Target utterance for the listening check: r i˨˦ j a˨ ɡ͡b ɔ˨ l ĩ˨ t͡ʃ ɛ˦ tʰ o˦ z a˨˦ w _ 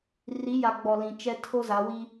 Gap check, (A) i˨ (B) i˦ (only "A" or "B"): B